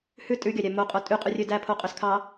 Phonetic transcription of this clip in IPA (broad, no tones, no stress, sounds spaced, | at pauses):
h ʉ tʼ ʉ ɡʲ ɑ ɾʲ æ m o qʼ o tʼ y qʼ ʉ rʲ ø d æ pʰ o qʼ ø s kʰ ɑ